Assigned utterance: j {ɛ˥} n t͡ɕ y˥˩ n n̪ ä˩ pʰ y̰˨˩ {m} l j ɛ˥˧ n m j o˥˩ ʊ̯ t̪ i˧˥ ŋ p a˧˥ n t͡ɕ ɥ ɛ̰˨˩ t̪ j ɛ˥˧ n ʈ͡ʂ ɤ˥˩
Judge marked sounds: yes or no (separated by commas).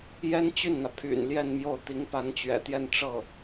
yes, no